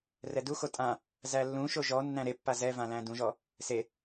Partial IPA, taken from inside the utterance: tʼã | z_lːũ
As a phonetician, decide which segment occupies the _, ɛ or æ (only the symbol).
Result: æ